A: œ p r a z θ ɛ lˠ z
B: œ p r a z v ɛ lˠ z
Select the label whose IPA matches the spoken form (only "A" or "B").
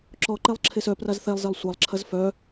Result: A